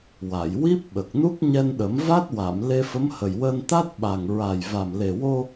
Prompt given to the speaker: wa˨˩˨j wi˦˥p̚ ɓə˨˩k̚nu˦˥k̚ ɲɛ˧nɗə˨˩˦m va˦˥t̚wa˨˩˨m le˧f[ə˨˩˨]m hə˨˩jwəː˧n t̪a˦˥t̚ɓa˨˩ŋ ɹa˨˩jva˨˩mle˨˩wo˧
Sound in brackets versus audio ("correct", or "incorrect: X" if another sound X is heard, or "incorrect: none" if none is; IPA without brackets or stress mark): incorrect: ə˧˥